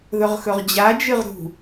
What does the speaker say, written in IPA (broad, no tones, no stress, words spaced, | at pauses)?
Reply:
ðɵʁxɵʁd͡ʑa d͡ʒɨʁɾṳ